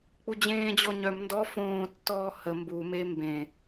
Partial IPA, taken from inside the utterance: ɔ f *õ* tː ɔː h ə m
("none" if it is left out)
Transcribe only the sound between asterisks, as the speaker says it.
õː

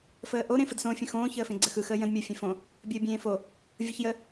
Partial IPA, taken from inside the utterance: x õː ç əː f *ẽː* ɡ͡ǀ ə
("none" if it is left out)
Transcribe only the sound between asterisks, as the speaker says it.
ẽ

